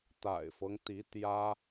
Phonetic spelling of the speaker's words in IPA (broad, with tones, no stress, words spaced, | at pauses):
t̪a̰˨˩ɪ̯fɤ˦ŋt̪i˧˥ t̪jä˥